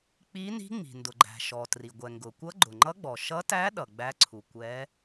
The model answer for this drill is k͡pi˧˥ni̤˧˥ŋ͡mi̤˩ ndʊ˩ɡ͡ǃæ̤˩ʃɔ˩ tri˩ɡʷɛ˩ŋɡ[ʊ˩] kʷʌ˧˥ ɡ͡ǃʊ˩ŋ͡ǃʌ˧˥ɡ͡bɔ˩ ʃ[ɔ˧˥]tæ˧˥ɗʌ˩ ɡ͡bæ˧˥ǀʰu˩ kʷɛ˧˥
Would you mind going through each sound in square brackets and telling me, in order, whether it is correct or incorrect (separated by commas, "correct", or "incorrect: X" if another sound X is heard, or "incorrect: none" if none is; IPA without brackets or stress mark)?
correct, incorrect: ʌ˧˥